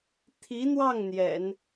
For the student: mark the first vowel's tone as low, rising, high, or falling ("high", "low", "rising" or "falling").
rising